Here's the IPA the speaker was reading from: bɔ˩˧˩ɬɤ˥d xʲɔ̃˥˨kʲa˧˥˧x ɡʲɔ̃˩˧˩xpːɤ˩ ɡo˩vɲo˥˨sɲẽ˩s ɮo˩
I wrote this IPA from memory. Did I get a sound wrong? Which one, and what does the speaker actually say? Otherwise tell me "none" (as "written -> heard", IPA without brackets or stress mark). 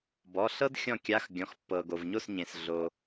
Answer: none